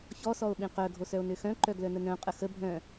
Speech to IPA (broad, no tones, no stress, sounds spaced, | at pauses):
ç ɔ s ɔ o̯ ɓ ĩ q œ ɡʱ o s œ o̯ n ø x œ̃ ǃ œ ɡ l œ n ə n œ̃ qʼ ə x ə bʱ œ̃